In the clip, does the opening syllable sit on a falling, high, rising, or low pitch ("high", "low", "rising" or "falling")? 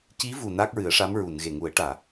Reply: rising